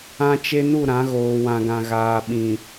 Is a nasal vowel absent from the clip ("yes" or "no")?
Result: no